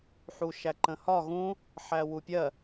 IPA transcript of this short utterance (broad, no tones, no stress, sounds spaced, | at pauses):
ħ u ʃ æ ǃ ə̃ h ɒ ɣ ũ | ħ æ w u pʲ ɜ